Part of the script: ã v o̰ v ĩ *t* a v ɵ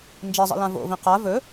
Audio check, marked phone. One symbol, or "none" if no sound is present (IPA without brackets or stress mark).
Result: q